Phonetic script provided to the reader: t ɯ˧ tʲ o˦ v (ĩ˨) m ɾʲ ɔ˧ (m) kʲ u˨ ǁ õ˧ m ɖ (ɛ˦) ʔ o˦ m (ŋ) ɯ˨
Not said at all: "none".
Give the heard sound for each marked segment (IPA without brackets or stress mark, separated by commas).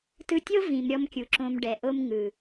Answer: ĩ˨, m, ɛ˨, ŋ